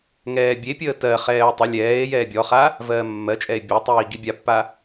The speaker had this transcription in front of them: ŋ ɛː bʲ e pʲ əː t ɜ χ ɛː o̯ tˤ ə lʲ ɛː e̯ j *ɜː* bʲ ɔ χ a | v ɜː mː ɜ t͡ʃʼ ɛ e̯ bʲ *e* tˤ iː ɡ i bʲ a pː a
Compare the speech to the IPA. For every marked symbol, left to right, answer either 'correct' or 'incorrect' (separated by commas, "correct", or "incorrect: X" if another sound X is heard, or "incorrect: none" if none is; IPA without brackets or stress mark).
incorrect: ɛː, correct